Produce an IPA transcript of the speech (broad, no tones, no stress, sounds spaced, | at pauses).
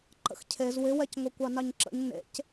ǃ ə̰ x cʰ e z w ɪ w ɛ c ŋʷ ɐ kʷ ɑ n ɑ ɲ ǁ ə̰ ɲ n ḛ c